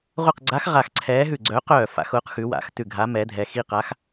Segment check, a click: present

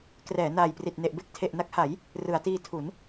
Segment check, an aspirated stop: present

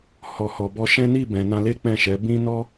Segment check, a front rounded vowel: absent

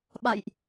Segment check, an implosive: present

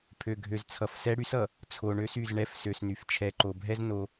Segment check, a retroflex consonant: present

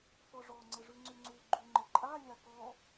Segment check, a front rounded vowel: present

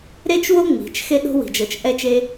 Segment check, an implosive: present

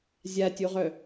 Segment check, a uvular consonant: present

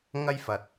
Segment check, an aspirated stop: absent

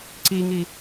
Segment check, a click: present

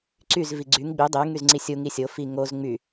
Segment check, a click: present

